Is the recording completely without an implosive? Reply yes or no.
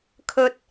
yes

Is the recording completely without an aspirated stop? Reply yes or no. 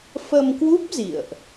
yes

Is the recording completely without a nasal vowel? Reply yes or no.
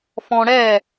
no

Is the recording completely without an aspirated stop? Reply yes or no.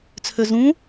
no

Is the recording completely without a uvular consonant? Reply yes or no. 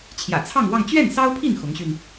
yes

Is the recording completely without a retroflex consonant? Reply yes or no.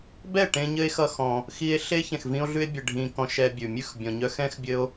no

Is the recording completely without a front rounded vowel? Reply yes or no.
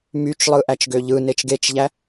no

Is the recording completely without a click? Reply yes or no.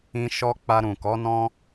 yes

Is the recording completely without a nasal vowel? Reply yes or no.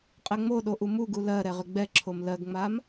yes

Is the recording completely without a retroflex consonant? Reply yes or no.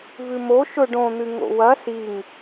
no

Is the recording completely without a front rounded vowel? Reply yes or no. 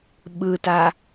yes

